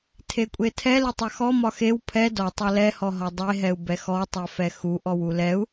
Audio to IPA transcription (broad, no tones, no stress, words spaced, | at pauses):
tʰekʷʼetʰɛ letˤaxɔ mɒxew pʰɛ dɔ tˤalɛ hɔɦɒdˤe ɦɛu̯bɛxɔ tˤɛfɛxu ʔɔwulɛu̯